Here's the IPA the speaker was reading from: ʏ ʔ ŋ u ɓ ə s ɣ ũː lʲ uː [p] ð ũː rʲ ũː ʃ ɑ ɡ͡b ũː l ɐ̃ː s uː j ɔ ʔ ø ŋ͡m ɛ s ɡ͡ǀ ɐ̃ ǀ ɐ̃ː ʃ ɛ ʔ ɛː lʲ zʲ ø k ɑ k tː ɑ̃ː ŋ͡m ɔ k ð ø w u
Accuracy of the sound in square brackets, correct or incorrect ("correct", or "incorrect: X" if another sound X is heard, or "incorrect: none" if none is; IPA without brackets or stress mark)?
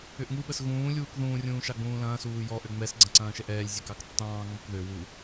incorrect: k